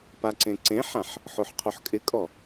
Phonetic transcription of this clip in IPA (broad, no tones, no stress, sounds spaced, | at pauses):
p a ǀ ẽ ǀ ẽ ħ ã ħ | ħ o ħ qʰ o ħ kʼ ɪ kʼ ɔ